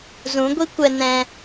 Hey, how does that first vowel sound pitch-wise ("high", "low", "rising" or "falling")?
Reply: rising